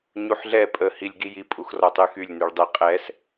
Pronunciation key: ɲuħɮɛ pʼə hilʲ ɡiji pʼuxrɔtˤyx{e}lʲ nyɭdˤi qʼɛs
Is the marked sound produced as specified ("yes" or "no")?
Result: no